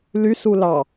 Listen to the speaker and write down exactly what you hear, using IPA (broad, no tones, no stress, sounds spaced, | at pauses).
l y s u l ɑ